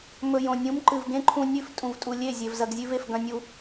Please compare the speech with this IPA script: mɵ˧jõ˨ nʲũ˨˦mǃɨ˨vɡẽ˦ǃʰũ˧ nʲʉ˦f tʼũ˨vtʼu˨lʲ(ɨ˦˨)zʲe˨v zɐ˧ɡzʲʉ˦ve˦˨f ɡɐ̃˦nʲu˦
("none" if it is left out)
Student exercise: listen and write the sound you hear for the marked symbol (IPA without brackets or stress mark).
e˦˨